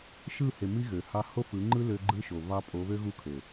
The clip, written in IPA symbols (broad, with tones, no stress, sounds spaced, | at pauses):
ʃ ɯ˦˨ h e˨ m i˦ ɣ ø˨ h ɑ˦ h o˦ f ɯ˨˦ ŋ͡ǃ ɯ˦ l ø˦ ɡ͡ǃ ɯ˦ ʃ o˨ β ɑ˦ pʼ o˨˦ β ø˦ ɣ u˦ kʰ ø˨